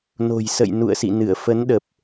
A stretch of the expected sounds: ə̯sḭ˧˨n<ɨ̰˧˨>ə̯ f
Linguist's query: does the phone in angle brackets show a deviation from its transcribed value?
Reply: yes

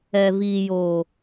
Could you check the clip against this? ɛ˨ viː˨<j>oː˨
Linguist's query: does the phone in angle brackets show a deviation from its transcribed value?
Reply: no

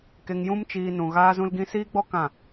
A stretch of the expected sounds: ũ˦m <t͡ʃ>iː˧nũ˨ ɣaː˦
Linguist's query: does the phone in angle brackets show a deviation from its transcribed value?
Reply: no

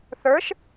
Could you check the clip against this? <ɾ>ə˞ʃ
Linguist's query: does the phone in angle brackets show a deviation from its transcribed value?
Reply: yes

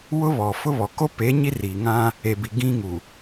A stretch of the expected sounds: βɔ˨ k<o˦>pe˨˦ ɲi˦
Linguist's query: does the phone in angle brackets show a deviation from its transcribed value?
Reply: no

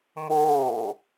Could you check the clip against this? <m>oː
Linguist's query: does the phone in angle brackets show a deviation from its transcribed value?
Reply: no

